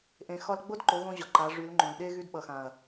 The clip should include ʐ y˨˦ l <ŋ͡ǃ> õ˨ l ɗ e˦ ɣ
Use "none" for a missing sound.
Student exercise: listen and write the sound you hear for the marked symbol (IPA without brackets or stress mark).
ŋ͡ǃ